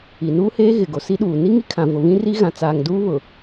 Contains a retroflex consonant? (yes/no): no